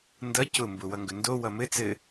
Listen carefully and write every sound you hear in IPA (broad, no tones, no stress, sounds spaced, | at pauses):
n d ʌ c ʊ m b ʊ w ʌ ŋ ɡ ɵ n d o w ʌ m ɘ t͡s ɘ